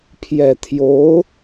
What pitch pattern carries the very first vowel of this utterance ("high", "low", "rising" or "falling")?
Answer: low